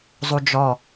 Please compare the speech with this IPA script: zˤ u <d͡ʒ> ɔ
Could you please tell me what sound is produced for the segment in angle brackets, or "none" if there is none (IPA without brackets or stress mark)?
d͡ʒ